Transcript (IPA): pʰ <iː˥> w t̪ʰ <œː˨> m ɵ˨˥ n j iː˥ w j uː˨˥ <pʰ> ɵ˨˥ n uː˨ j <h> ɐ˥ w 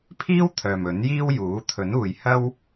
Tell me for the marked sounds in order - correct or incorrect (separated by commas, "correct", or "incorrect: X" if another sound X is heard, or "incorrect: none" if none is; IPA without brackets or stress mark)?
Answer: correct, correct, incorrect: t̪ʰ, correct